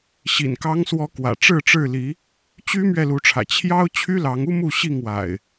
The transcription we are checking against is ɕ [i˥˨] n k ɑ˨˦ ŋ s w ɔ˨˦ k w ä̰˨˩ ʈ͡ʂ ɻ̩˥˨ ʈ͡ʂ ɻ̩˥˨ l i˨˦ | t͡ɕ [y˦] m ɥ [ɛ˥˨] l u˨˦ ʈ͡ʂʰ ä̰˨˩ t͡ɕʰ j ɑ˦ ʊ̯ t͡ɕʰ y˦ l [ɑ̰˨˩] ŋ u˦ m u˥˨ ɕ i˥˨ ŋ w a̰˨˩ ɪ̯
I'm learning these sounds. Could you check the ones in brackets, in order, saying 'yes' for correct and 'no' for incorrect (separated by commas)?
no, yes, yes, no